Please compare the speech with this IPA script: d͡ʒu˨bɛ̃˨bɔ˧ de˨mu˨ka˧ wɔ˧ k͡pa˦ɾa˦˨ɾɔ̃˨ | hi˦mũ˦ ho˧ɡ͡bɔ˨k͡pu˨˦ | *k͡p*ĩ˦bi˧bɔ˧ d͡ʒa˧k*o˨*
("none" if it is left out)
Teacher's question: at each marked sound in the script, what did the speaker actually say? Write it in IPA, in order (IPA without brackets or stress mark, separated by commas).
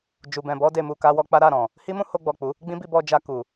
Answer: ɡ͡b, u˨